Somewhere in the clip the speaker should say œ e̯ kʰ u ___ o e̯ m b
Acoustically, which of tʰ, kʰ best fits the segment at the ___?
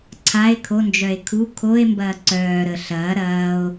kʰ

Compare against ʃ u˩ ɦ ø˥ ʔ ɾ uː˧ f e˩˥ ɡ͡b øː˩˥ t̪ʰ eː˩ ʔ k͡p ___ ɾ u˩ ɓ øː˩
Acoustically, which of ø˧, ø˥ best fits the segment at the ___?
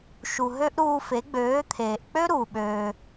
ø˥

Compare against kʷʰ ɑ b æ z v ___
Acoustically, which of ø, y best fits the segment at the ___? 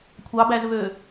ø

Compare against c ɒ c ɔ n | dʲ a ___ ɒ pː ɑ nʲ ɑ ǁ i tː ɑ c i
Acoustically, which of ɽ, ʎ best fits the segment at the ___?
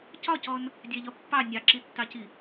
ʎ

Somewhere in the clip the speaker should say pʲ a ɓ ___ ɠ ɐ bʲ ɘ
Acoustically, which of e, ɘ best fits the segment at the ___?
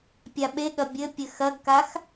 e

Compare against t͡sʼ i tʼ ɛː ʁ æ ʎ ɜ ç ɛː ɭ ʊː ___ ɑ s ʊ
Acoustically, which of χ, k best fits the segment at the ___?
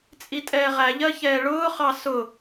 χ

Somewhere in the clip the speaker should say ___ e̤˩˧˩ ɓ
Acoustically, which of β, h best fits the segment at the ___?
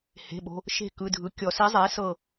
h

